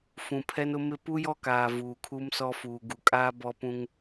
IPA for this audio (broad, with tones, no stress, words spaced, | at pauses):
fũ˨pʰɛ˦nʊ˦mɪ˦ pu˦jɔ˦kaː˨ vuː˨kʰu˦msɔ˦fuː˨ ɡu˨kʼaː˦ bɔ˦pũ˦ŋ